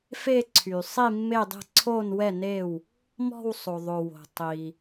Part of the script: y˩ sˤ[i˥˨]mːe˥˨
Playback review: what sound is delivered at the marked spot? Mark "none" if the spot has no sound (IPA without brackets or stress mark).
i˥˨